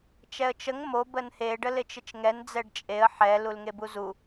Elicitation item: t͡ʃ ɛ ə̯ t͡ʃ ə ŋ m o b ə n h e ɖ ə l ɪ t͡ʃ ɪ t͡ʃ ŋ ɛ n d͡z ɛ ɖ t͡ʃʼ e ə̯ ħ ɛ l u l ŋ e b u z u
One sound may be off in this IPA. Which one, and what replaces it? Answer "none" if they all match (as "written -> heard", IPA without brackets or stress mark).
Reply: none